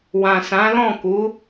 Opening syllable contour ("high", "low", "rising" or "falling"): low